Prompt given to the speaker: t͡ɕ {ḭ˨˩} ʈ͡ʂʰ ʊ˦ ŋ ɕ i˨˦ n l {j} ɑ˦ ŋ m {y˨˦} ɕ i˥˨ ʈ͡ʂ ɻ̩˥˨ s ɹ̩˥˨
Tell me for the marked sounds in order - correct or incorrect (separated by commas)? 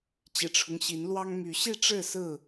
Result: correct, incorrect, correct